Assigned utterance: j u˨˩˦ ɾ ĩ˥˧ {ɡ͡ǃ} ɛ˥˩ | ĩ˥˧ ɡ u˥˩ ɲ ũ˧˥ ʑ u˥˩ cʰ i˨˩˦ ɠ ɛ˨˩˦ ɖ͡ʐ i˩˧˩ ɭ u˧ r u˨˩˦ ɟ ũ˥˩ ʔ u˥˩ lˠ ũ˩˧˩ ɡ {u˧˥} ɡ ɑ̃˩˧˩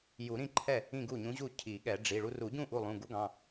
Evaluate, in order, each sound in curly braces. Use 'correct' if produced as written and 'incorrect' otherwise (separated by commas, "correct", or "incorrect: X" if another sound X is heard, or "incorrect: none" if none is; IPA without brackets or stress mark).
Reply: incorrect: ǃʰ, correct